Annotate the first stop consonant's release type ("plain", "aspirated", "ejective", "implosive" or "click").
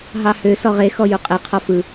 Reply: ejective